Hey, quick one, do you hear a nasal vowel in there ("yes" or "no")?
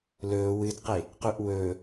no